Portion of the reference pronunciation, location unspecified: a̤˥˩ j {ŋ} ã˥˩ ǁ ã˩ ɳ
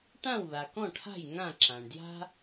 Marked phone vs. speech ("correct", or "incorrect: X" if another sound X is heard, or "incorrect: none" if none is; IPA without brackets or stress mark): correct